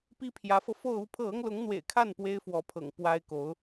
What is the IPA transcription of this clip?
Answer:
p i˥ pʰ j ä˧˥ f ɤ˧ f o˥˧ ʊ̯ u˥˧ pʰ ɤ˥˩ ɤ˥ ŋ l ʊ˧˥ ŋ n̪ w ḛ˨˩ ɪ̯ kʰ a˥˩ n p w e˥ ɪ̯ f w ɔ˧˥ pʰ ɤ̰˨˩ ŋ p w a˥ ɪ̯ k o˧˥ ʊ̯

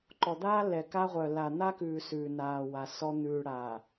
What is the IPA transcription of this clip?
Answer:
ǃ ɔ˨ d̪ aː˦ lː ɛ˨ k a˦ ʁʷ œ˨ lː a˨ n̪ a˦ k ʉː˨ s ʉː˨ n aː˨ w a˨ s ɔ˦ n̪ ʉː˨ ɽ aː˨

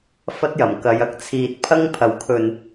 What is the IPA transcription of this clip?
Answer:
f ɐ˥ t̚ j ɐ˨˩ m k ɐ˧ j ɐ˥ k̚ t͡sʰ iː˧ t̚ pʰ ɐ˥ ŋ pʰ ɐ˨˩ w kʰ ɵ˨ n

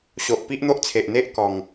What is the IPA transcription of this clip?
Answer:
ɕ o˨ ʔ p i˦ ʔ n̪ o˦ ʔ t͡sʰ e˨ ʔ n̪ e˦ ʔ k ɔ˨˩ ŋ

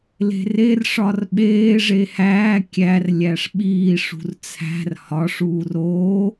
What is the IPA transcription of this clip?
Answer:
l e̤ r e r ʂ ɒ r ɓ eː ʐ e h æː kʲ æ r lʲ æ ʂ ɓ iː ʂ ṳ r t͡sʰ æ̤ r h ɒ ʂ uː r oː

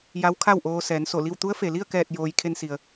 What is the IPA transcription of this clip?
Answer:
j a˧˥ w kʰ a˥˨ w ʔ oː˧ s ɛː˩˧ n s o˧˩ l i˥˨ w t̪ u˧˥ ə̯ f e˩ l i˥˨ ə̯ k ɛː˧˩ t̚ j oː˩ j kʰ e˧ n s i˩ ə̯

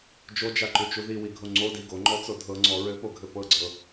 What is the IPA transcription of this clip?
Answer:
d͡ʒ o d͡ʒ a ǃ ʉ t͡ʃ u ð i w i ɡʱ o ŋ͡ǀ o d i ɡ o ŋ͡ǃ ɔ t͡s o dʱ ɤ ŋ͡ǀ ɔ ɹ ɘ p o ɡʱ ɘ p ɤ ɡ͡ǀ ɤ

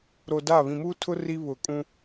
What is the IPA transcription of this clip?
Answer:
ɾ o˨ d a˦˨ β ĩ˨ m uː˦ tʰ ʊ˦ r i˦ β ʊ˨ kʼ ũ˦

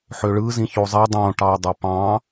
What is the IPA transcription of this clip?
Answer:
ħ ø ɭ ɯ z ĩ ç o zˤ e dˤ õ ʈ ɑ u̯ dˤ e p ɑ̃

